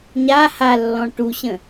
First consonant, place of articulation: palatal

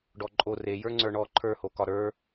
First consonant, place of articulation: retroflex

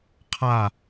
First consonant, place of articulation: uvular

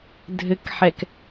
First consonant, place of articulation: alveolar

